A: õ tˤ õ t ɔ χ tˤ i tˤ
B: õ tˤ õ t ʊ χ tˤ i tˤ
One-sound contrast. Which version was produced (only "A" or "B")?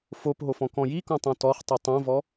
A